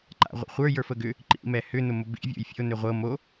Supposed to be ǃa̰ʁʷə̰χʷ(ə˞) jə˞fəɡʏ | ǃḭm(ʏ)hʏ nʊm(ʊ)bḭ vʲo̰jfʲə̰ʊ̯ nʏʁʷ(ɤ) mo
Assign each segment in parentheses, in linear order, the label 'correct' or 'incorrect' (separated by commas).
correct, incorrect, correct, correct